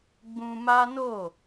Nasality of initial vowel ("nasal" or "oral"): nasal